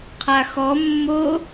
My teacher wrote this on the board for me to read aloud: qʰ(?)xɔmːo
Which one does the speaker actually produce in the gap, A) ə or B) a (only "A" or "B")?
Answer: B